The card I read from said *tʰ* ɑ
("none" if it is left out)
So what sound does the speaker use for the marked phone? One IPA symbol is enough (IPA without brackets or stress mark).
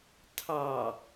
tʰ